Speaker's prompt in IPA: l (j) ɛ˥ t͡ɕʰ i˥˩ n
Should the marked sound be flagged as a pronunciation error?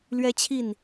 yes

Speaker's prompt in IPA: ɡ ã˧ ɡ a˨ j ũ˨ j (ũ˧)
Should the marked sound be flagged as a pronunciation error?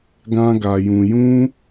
no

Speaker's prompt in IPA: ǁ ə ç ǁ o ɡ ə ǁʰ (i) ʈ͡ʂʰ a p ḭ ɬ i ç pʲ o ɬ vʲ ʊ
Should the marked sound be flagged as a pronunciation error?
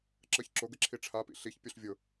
no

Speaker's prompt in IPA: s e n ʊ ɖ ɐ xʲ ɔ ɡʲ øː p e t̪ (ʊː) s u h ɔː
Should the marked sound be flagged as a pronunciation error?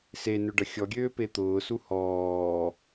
no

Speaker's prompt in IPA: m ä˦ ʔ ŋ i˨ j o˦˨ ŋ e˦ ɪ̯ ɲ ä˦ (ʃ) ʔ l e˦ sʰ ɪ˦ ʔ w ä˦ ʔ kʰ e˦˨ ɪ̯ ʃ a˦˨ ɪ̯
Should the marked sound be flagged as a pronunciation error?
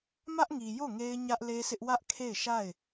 yes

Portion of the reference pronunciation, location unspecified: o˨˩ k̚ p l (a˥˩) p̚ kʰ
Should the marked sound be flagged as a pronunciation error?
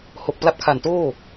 yes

